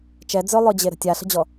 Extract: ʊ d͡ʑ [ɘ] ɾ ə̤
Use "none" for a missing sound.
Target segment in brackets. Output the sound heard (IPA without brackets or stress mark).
e